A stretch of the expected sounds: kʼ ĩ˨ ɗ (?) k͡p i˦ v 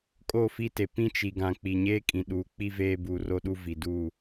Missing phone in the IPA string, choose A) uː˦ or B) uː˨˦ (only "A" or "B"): B